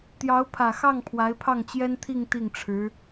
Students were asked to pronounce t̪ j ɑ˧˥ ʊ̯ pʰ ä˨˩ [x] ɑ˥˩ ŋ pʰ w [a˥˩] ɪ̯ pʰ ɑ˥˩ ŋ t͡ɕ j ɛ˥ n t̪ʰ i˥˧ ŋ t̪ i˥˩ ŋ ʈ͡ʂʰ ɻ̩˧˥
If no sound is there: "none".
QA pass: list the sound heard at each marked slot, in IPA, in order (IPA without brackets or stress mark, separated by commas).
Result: x, a˧˥